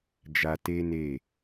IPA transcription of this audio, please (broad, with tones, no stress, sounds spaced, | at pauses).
d͡ʒ a˧ t e˦ n e˦˨